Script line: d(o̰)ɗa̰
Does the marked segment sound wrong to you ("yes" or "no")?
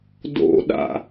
no